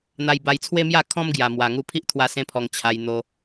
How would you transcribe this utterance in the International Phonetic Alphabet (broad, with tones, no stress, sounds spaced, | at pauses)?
n̪ a˧ j b a˧ j t͡sʰ w e˦ m j a˥˧ kʰ ɔ̃˦ m ɡ j a˨˩ m w a˨˩ ŋ u˧ pʰ i˦ ʔ t̪ʰ w a˧ s ẽ˧ pʰ ɔ˨˩ ŋ t͡ɕʰ a˧ j n̪ o˧